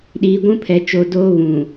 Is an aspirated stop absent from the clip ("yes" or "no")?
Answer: no